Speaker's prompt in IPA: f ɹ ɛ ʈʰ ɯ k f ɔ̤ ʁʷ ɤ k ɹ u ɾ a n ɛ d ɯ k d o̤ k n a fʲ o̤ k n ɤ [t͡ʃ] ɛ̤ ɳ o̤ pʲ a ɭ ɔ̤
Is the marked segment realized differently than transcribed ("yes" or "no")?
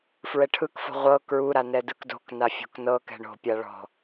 yes